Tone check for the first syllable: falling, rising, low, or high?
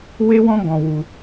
high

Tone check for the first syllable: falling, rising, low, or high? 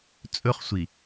high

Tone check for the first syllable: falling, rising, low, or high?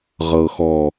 low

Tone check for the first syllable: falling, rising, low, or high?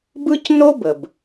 high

